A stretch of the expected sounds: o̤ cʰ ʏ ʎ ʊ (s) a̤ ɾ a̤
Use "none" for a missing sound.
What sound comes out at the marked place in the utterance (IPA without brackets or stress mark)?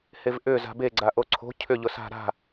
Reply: s